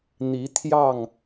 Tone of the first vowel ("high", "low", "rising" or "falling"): rising